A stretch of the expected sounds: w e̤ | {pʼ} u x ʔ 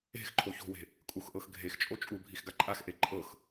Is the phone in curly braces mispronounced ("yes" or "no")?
yes